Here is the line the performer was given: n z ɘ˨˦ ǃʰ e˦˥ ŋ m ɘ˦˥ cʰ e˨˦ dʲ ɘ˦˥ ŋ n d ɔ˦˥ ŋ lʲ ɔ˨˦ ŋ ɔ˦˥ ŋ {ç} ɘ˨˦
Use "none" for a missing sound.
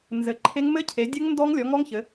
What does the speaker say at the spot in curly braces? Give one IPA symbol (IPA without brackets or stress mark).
ç